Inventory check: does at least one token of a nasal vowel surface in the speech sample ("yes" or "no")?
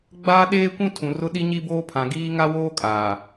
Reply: yes